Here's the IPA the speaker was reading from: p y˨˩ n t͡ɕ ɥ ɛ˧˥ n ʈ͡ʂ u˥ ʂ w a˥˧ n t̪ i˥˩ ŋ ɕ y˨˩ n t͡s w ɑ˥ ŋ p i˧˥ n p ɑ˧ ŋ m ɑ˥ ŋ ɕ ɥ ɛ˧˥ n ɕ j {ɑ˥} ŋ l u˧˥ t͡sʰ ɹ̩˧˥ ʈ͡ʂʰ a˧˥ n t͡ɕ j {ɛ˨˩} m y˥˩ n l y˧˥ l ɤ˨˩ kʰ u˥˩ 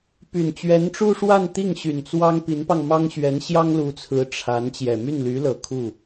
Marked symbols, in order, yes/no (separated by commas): yes, yes